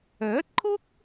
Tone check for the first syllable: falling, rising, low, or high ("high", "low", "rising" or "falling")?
rising